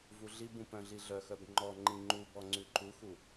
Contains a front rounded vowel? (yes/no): yes